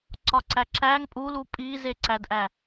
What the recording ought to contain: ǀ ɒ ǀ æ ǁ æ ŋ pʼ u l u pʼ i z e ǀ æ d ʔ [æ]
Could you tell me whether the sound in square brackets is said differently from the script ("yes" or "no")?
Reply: no